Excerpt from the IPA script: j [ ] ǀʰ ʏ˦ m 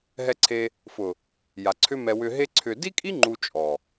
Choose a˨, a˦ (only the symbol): a˨